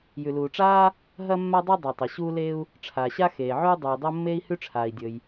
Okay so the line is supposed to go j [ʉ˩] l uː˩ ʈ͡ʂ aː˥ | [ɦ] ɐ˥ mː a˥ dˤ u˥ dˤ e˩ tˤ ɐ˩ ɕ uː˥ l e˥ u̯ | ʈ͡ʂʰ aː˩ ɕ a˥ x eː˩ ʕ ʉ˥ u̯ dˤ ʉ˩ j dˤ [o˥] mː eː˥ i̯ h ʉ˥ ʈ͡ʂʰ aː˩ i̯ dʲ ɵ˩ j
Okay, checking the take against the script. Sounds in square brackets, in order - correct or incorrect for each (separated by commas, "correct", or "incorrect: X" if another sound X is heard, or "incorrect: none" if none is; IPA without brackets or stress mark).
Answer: correct, correct, correct